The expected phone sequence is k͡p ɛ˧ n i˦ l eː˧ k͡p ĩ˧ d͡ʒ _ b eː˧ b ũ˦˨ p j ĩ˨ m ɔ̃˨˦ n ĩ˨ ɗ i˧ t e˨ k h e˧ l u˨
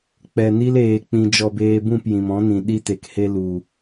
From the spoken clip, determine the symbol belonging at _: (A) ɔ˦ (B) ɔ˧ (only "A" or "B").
B